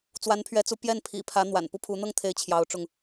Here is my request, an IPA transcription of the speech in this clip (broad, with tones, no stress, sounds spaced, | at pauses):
t͡s w a˧˥ n pʰ ɥ ɛ˧˥ t͡s u˧˥ p j ɛ˥˩ n pʰ ḭ˨˩ pʰ ä˧˥ n̪ w a̰˨˩ n p u˥ pʰ u˧˥ n̪ ɤ˥˧ ŋ t̪ʰ e˥˩ ɪ̯ t͡ɕʰ j ɑ˧˥ ʊ̯ ʈ͡ʂ ʊ˧ ŋ